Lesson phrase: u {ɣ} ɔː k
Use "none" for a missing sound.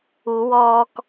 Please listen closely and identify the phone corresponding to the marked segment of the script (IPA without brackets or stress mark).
w